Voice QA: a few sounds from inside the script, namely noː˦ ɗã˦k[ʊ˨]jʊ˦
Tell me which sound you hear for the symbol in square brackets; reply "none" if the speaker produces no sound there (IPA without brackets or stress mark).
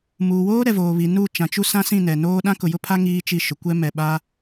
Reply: ʊ˨